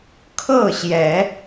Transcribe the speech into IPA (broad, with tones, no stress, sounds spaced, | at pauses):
kʰ ɤ˥˨ ɕ j ɛ˨˦